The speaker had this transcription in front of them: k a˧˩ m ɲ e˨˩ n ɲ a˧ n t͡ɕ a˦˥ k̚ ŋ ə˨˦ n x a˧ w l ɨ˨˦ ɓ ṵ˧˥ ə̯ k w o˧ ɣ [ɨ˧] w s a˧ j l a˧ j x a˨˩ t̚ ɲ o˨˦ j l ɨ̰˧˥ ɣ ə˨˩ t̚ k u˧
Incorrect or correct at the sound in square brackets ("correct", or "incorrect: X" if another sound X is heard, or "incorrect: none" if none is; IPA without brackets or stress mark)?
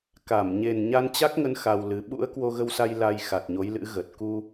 incorrect: ə˧